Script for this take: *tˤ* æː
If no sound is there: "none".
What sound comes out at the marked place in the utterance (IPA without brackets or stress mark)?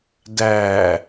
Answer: d